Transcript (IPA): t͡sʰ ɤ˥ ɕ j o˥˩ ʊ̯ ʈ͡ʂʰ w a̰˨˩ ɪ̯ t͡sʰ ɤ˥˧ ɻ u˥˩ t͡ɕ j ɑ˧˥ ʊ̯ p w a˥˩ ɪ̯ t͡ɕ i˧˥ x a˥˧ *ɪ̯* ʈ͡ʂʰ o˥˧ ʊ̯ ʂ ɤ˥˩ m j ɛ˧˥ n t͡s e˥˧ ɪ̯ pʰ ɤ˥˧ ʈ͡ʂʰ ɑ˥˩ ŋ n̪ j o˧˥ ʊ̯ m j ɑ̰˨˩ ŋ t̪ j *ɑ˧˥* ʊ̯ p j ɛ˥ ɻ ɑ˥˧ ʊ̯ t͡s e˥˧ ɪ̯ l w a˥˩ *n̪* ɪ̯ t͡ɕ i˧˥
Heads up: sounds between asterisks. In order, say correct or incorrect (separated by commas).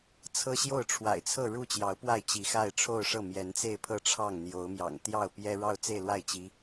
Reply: correct, incorrect, incorrect